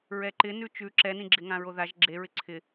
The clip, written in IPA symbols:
ɹ ɛ ǃ ɪ n ʉ t͡ʃ ʉ ǁ ɛ n ĩ ɡ͡ǁ ɪ ŋ ã ɹ o ð a ʒ ɡ͡ǁ e ɹ ɪ ǀʰ ɪ

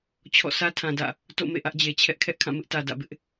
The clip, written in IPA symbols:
t͡ɕʰ ɔ̰˦˨ sʰ ä˦ tʰ ã˨ d ä̰˦˨ | t o̰˦˨ m ḛ˦˨ ʔ ä˦ ʔ d͡ʑ e˨ t͡ɕʰ ɛ˦ ʔ kʰ ɛ˦ ʔ kʰ ã˦˨ m ɪ˦ ʔ t ä˨ d ä̰˦˨ b ɪ˦ ʔ

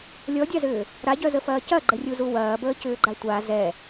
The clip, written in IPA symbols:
lʲ ɔ dʲ a z ʏː | ɾ a ɟ œ z ə f ɐː c ɐ ɡ͡ǃ ə rʲ u z u w ɐː b əː c ʏː ɡ͡ǃ a tʷ a z ɛ

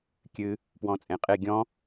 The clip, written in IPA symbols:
kʲ ɨ | p w ɔ̃ t͡sʼ ẽ qʼ e ɡʲ ɔ̃

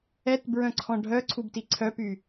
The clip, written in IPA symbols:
ɛ t b ɹ œ̃ ǀʰ ɔ̃ ɖʱ œ ǀʰ u b t i ǀʰ œ p y

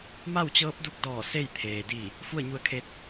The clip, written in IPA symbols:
m a˥˨ w t͡ɕ ɤː˧˥ p̚ d u˧ k̚ d ɔː˧˩ s e˥˨ j t̪ʰ eː˩ d i˧˩ | f u˥˨ ə̯ ɲ u˧˥ ə̯ kʰ e˧ t̚

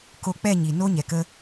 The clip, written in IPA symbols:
k o˧ k͡p ɛ˦˨ ɲ i˨ n o˧ ɲ ɛ˨ k ə˦

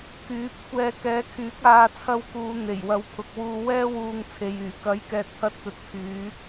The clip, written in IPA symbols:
k yː˨˥ p̚ kʷ ɛː˧ k ɛː˨˥ kʰ yː˨˥ k̚ aː˧ t͡sʰ ɐ˧ w k uː˨˧ n̪ e˨˩ j w ɐ˨˥ w pʰ ʊ˨ k̚ w uː˧ w ɛː˥ w uː˧ ŋ t͡sʰ e˨ j yː˨˩ k ɐ˨˥ j k ɛː˨ t̚ t̪ʰ ɐ˧ t̚ t̪ ɵ˨ t̚ pʰ yː˨˧

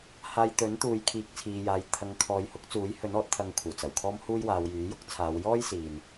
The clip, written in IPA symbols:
h aː˧ j t̪ ɵ˨˥ n t̪ uː˨˧ j kʰ iː˨ k̚ t͡sʰ iː˨ j aː˨ j t̪ʰ ɐ˨˧ ŋ kʰ ɔː˨ j h ʊ˨˥ k̚ t͡s uː˨˥ j h ɵ˨˥ n ɔː˨˥ t̚ t̪ʰ ɐ˧ ŋ kʷʰ ɐ˨˩ w t͡s ɐ˨˩ w kʰ ɔː˥ m h uː˥ j w aː˨˧ w j yː˨˥ j ʊ˥ k̚ t͡sʰ aː˨˧ w j ɔː˥ j s iː˨ n

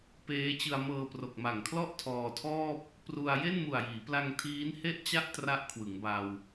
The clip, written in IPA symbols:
p eː˦˥ t͡ɕ ɯ˧ a̯ m ɤː˧ p r o˨˩ k̚ m a˨˩ ŋ kʰ l ɔ˥˩ ʔ tʰ ɔː˧ tʰ ɔː˥˩ p̚ | p r u˧ a̯ j e˥˩ n m u˨˩ a̯ j iː˩˦ p l a˧ ŋ tʰ iː˦˥ n h e˥˩ ʔ t͡ɕ a˥˩ ʔ t r a˦˥ ʔ kʰ w ɯ˩˦ ŋ b a˧ w

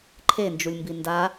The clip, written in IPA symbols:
ǃʰ e n d͡ʒ u lʲ m b i n d a

